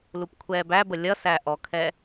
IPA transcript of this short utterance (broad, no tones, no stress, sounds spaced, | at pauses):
l u p kʷʰ ɛː b æ b ə lʲ ʌ s æ ʔ ɔ kʰ ɛ